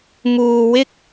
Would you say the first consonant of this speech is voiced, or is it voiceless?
voiced